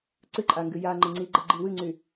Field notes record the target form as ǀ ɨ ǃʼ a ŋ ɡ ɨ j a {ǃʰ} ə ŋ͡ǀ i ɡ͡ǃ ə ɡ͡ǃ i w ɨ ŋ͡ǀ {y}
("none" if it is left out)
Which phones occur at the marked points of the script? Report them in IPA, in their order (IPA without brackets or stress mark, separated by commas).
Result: ŋ͡ǃ, y